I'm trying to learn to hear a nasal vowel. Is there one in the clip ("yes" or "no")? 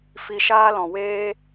yes